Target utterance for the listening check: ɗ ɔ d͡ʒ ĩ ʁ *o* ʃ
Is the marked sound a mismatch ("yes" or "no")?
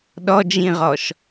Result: yes